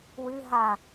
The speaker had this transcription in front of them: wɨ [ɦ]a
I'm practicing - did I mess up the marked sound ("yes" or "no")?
no